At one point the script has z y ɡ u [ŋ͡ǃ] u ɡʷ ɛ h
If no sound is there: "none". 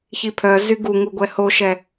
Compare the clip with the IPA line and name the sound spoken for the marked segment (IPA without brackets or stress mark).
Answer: ŋ